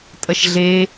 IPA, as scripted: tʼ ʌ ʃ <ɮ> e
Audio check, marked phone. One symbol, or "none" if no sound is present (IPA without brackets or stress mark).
ɮ